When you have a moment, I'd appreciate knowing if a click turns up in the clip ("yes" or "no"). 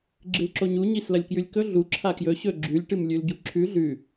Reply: yes